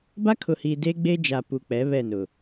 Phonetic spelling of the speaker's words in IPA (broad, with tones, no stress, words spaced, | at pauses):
ba˦kʰʊ˨hiː˨ de˦ɡ͡be˦d͡ʒa˨ pu˨k͡pɛ˨˦ βɛ˦˨nʊ˨